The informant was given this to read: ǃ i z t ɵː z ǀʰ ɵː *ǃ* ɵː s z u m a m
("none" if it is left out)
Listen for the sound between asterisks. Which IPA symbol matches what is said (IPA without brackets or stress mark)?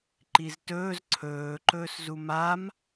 ǃ